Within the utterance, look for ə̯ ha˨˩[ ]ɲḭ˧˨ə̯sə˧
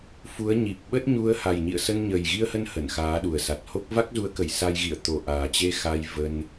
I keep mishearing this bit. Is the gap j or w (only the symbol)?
j